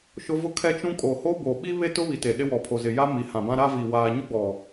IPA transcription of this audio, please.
ʃʊ˦vʊ˦kʰɛ˦ t͡ʃũ˦ kʼo˨ho˦bo˨ ɓi˦ βe˦tʊ˦βi˨te˨ ɗɪ˦wɔ˨pʰo˨ zɪ˨ja˦ mi˨hã˨bã˦ ɾa˦vi˨ waː˨ɲʊ˦ɡ͡bɔ˨

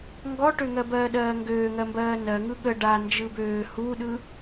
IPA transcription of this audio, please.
ŋɡɔʈøŋɜ bɜːɗɜːŋɡøːŋɜ mbɜːnɜŋɯ ɠə ɖa nd͡ʒɯbøː huɗɯ

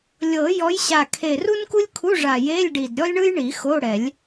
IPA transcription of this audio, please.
lʲɤ˨˩˦ jɔ˨˦jɕa˨˩ kʰe˨˩ru˥nku˥lʲkʰu˧˥˧ ʐa˨˩je˧˥˧lʲɖi˨˩d ɾʲɔ˥lʲɳɯ˥jɳi˨˩˦ xo˧˥˧ɽɛ˨˩˦lʲ

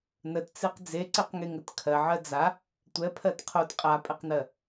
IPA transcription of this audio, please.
nətt͡seq d͡zeǀeqŋeŋət kʰɜʕɜ d͡za | tʷɛpʰɜt qʰot qʼapʼɛqnɜ

